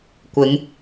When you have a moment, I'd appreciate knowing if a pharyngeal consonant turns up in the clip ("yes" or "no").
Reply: no